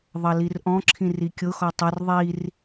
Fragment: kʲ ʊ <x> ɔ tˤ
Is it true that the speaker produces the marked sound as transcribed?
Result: yes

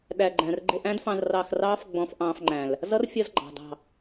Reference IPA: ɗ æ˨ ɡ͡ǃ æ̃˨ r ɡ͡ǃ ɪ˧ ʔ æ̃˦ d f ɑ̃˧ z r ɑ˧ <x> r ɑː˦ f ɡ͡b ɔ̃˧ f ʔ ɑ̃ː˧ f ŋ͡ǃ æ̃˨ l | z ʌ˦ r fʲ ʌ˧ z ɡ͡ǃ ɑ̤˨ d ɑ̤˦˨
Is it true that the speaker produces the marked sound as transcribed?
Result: yes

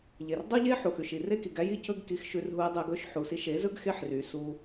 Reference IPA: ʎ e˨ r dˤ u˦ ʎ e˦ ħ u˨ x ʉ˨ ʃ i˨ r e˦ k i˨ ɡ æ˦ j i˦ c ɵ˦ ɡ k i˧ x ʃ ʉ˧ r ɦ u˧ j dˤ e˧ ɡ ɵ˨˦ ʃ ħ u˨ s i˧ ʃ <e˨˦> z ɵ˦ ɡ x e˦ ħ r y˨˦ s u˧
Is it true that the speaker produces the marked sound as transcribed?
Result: yes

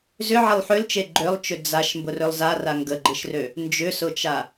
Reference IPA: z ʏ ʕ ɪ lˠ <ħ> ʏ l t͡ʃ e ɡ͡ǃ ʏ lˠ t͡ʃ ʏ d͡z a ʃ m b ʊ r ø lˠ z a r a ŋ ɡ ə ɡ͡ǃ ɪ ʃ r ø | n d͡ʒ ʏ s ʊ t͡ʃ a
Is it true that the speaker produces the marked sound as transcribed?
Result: yes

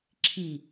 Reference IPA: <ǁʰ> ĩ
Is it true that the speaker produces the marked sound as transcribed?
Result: yes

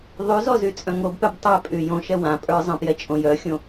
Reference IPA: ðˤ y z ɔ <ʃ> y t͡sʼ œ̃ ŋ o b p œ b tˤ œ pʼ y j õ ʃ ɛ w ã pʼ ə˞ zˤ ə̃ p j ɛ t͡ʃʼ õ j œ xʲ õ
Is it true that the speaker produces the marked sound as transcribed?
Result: no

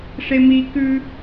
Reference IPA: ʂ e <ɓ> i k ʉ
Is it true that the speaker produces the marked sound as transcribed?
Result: no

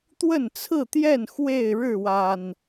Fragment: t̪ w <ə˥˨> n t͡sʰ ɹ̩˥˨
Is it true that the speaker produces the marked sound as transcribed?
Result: yes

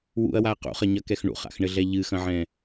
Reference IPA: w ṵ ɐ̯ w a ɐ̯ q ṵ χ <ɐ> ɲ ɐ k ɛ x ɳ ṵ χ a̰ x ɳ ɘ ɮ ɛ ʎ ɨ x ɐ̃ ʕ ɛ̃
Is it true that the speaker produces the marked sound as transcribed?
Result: yes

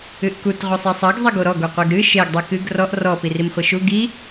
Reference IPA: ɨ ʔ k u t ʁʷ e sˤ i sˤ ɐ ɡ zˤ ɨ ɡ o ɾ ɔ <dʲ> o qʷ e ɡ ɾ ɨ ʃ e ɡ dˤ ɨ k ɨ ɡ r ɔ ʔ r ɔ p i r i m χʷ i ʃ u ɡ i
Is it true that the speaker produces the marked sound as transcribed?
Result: no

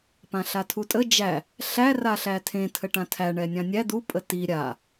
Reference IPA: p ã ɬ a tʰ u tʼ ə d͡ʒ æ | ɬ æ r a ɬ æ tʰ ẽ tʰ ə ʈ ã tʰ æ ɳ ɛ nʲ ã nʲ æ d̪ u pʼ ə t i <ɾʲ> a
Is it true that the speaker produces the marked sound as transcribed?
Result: yes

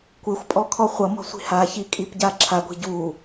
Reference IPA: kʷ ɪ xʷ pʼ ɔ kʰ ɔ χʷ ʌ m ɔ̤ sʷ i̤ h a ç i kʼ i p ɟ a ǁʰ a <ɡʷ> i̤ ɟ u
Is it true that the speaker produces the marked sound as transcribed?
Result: yes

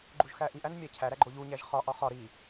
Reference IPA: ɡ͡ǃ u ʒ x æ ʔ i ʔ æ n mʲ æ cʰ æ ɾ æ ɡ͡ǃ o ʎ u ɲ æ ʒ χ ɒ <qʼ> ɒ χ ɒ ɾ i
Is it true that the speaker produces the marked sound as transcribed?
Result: no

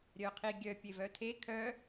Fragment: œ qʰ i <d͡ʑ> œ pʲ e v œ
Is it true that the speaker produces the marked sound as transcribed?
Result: no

